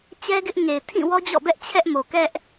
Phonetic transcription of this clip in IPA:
t͡ɕ ɛ˦ ɡ ɪ˦ ʔ ŋ e˨ ɪ̯ tʰ ĩ˦˨ w ɔ˦ d͡ʑ ɔ̰˦˨ b ɛ˦ ʔ t͡ɕʰ ɛ˦ ʔ m o˨ k ɛ˦ ʔ

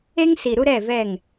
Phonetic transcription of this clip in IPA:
e˦ ŋ s i˨ ɾ u˦ ɾ ɛ˦˨ v ɛ˦˨ ŋ

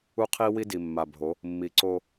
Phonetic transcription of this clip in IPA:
u˦ qʰ i˦ w i˦ d i˨ mː a˨ bʱ o˨˦ | mː i˨ ǀ o˦

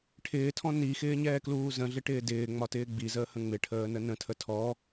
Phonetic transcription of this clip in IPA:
ʈʰ ɪː tʰ ɔ̃ n i x ɪː ɲ ɛː k l uː z ə̃ ɮ ɪ ʈ ɪː d ɪː ŋ͡m ɒ t ɪː ɡ͡b i z əː h ə̃ ŋ͡m ɪ ʈʰ əː n ə n ə̃ tʰ ə tʰ ɔ

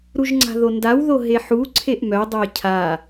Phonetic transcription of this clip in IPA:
ɾ u ʒ ŋ͡ǀ a̤ ð o n d a w ð o ɦ e ħ u ǀʰ e ʔ m œ dˤ œ ɪ̯ cʰ a

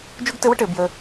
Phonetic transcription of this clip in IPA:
d͡ʒ u˥ ɡ t ɘ˥ w ə˥ ʈ ɘ˥˧ b j ə˧

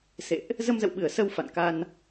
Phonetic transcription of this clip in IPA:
s ḛ˧˨ ʔ | z ə˧ m z ə̰˧˨ w ɓ ɨ˧˩ ə̯ s ə˧ w f a̰˧˨ n k a˧ n

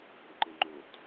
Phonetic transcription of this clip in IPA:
b ɪ ǃ ɪ ŋ͡ǃ o t

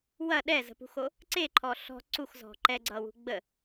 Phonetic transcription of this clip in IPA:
w ɐ ɗ ɛ z ə̤ p ṳ x o | ǀ e ǃʰ ɔ ɬ ɔ̤ ǀ u x z ɔ̤ ǃ ɛ ɡ͡ǀ ʌ w ṳ ɡ͡b ə

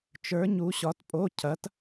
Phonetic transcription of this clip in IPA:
t͡ʃ ə˞˧˥ ɲ u˧˥ ɕ ɒ˧˥ t pʼ o˧˥˧ cʰ ɐ˧˥ t

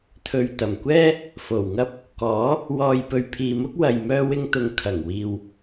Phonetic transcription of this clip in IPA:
t̪ʰ ɵ˨ ɥ t̪ ɐ˨˩ m kʷ ɛː˥ | f o˨˩ w ŋ ɐ˥ p̚ | k ɔː˨˥ | w ɔː˨ j p ɵ˨ ɥ pʰ iː˨ m ʊ˥ k̚ w ɐ˨ j m œː˧ w ɪ˧ ŋ t̪ ʊ˨˧ ŋ kʰ ɐ˨˩ ŋ w iː˨ w

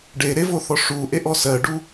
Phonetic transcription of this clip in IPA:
ɖ e ɾ e v o θ ɔ ʂ u ʔ e ʔ ɔ s ɜ ɖ u

